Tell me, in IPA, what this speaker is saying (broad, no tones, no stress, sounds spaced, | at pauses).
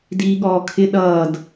d iː ɠ ɔː kʰ ɪ ɗ ʌː d